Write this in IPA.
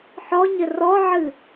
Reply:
ħɔɲɘ rɔʕɨ

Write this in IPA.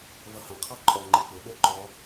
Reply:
vʌhɑ̃qʰɑ ǃʼɔ ŋ͡ǃɪk͡pʊɓə˞ ǃɔ

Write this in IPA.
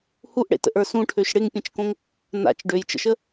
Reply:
huʔɽḛtə̰ʔə˞ sũʈʰøʃ ɽɪŋpʲẽt͡ʃkõŋ | na̰t͡ʃ ɖøjt͡ʃə̰ʃə

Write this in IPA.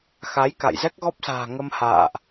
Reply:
xa˨˦jka̰˧˨jzɛ˦˥k̚ ɣɔ˦˥p̚sa̤ː˨˩ ŋə˧mha̰ː˧˨ʔ

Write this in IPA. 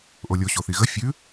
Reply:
ʔolʲo ɕoθiɣə fʲʉ

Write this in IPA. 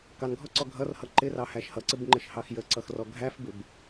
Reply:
kɑnɡʱɔǀɔ ɡʱʌrhʌ ǃɪrɑhæʃ hʌǀɪbŋ͡ǃɪʃhɑx jəǀʌxrɔ ɡʱæfbɪb

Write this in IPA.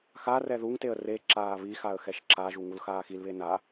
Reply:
xarɛ ðuŋteə̯ re ǁaːβixaə̯ xɛʃǁaʒu ŋulxaːxilβe na

